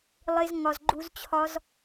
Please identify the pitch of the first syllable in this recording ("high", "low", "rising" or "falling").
high